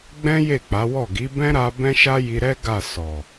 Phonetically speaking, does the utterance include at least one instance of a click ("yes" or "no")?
no